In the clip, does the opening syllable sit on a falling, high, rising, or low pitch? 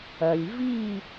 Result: low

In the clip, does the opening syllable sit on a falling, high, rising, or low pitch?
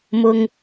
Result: low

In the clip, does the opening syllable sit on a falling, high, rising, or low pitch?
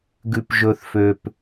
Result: low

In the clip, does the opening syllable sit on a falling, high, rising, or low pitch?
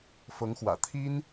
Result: rising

